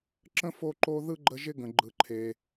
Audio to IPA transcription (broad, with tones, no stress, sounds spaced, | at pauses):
ǁ ə̃˥ f o˦ ǃ o˦ ð ɯ˥ ɡ͡ǃ ə˦ ʒ ɪ˥ ɡ ə̃˨ ɡ͡ǃ ɯ˨ ǃʰ e˨